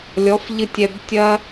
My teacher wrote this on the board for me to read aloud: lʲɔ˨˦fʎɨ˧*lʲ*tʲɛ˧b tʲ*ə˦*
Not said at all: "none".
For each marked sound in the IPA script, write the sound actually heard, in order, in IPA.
none, ɐ˦

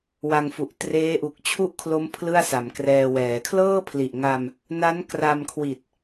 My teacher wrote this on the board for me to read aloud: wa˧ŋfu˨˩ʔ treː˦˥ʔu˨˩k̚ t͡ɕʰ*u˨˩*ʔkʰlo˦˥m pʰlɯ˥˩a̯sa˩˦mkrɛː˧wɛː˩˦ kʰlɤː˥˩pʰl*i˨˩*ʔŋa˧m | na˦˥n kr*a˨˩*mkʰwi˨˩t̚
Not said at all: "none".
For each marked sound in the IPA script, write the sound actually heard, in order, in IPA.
u˥˩, i˨˩, a˧

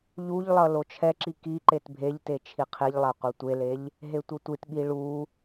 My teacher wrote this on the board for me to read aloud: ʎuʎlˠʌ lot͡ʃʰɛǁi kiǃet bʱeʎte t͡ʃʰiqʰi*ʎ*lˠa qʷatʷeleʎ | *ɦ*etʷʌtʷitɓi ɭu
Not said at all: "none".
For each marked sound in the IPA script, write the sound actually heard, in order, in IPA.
ʎ, ɦ

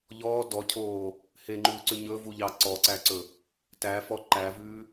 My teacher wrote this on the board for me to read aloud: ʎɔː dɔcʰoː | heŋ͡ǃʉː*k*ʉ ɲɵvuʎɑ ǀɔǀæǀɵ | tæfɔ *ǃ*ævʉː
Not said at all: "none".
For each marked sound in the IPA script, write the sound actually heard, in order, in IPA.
ǀ, ǃ

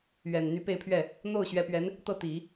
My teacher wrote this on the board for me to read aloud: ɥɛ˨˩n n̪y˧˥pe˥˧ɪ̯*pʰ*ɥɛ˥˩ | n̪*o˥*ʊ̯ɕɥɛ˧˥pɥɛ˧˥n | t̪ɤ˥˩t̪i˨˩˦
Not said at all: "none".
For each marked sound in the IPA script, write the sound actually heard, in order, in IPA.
pʰ, o˥˩

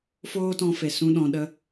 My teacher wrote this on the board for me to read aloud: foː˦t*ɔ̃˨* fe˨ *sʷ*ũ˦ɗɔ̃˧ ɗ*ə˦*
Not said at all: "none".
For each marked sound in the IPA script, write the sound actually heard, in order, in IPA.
ɔ̃˧, s, ə˧

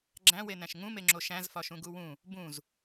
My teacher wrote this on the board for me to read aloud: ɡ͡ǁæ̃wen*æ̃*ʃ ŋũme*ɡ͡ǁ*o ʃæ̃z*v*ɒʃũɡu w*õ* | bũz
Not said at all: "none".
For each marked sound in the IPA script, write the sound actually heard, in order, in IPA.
æ̃, ŋ͡ǁ, f, ũ

